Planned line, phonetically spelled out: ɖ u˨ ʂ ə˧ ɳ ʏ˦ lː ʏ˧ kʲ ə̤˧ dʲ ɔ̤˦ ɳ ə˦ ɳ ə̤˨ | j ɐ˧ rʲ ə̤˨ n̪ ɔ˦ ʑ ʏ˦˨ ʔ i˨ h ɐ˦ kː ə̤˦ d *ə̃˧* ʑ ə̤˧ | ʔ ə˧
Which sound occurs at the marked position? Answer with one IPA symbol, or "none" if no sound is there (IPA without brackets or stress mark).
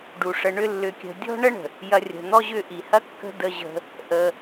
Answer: ə˧